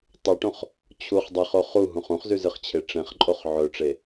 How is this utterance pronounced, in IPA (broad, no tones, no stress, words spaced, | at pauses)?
tˤʉʈõχ | t͡ɕʰuχ dˤeχo χuɦũχ ũχzʉzɨχt͡ɕʰe ʈ͡ʂẽχǃʼoχ ʕɵʈ͡ʂe